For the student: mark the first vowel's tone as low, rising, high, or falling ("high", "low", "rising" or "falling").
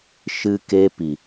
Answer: high